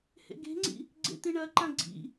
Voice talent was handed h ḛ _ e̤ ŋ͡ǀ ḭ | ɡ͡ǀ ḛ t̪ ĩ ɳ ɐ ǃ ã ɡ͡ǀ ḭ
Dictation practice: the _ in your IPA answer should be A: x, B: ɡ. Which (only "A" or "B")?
B